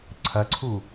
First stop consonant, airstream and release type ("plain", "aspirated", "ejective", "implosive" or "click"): click